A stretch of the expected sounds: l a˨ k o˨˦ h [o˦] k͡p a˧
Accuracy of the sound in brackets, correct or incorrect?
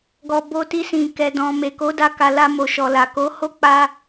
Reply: correct